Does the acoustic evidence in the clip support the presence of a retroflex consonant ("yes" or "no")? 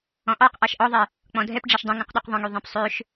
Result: yes